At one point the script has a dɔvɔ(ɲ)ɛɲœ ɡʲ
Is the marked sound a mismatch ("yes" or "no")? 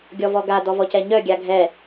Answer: yes